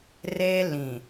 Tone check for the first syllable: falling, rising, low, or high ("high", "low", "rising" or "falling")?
high